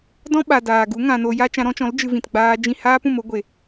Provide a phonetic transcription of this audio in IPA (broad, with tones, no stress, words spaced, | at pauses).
dɔ̃˦ɓa˨ daː˨ɡu˨˦ ŋã˨ no˨ja˧ t͡ʃã˧ɾɔ̃˦t͡ʃɔ̃˨˦l d͡ʒɨ˧vĩ˨tɡ͡baː˧d͡ʒĩ˦˨ haː˦pũ˨m o˦ɡʷe˨